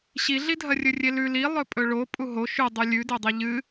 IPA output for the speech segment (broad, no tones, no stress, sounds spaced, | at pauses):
ɕ i ɮ i dʱ ɐ rʲ ɵ rʲ e l ʉ l i lˠ ɵ pʼ ɵ ɭ o pʼ u ɦ o ʃ ʉ dˤ ʉ lʲ ʉ d e dˤ i ʎ ɨ